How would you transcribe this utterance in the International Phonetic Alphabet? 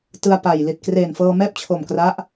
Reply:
t ɯ˧ a̯ p a˨˩ j l i˨˩ t̚ k r eː˨˩ n f ɤː˧ m ɛː˥˩ p̚ t͡ɕʰ o˨˩ m k r a˦˥ ʔ

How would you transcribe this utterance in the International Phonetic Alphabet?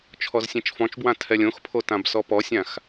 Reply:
t͡ʃʰ ɔ z sʲ ẽ t͡ʃ f ɔ̃ t͡ʃ b w ã tʰ ɛ lʲ õ x pʰ o t ã b s ɔ p ɔ sʲ ã x

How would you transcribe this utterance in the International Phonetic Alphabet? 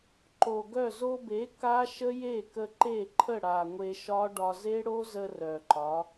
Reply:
ǃ o˨ ɡ œ˦˨ z o˧ b e˨˦ k a˦ ʃ ə˦ j e˦˨ k ə˧ ǃ e˦˨ ǃʰ ə˦˨ ɽ a˨ ŋʷ e˧ ʃ ɒ˦ ɖ ɒ˧ z e˦ ɽ o˦ z ə˧ r œ˨ ǃ ɒ˨˦

